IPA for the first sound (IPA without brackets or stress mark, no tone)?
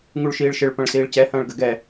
ŋ